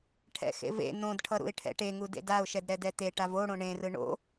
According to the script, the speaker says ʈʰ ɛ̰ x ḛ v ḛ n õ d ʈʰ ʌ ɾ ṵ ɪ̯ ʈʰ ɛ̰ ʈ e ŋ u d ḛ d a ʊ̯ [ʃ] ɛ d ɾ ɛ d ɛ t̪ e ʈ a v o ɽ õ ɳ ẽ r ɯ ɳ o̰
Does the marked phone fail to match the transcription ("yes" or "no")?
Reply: no